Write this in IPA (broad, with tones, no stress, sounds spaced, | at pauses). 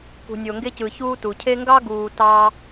k ṳ˨ nʲ o˨ ŋ ɡ e˥ c ɯ˨ ç uː˥ t u˩ cʰ e˦ ŋ ɡ ɑ˥ ɡ uː˨ t ɑ˦